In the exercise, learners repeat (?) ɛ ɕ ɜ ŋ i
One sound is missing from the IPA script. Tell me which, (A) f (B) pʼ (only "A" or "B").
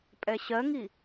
B